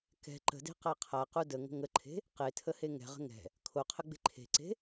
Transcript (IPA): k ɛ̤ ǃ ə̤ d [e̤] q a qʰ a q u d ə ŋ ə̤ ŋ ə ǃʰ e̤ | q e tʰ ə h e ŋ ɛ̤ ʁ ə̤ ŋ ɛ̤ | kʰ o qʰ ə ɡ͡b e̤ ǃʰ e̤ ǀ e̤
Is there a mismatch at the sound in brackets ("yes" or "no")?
no